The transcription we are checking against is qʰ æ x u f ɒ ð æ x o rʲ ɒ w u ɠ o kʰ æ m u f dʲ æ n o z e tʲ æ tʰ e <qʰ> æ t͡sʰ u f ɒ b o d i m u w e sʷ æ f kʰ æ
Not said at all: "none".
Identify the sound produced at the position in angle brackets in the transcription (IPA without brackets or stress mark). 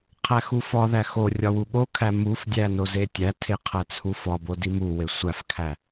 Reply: qʰ